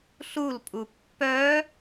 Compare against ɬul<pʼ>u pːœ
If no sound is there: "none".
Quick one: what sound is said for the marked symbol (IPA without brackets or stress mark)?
pʼ